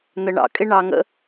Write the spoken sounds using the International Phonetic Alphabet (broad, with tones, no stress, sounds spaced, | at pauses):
n̪ ə˨ ɳ ɑ̰˨ kʼ ɪ˧ ɳ ɑ˨ ŋ ə̰˧